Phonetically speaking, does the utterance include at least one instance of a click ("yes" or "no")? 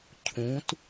no